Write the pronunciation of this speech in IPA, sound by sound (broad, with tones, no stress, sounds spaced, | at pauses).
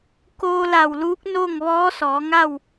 k oː˧ l a˧˩ w l uː˧˥ k̚ n o˥˨ ŋ ʋ ɔː˧˥ s ɔː˩˧ ŋ a˥˨ w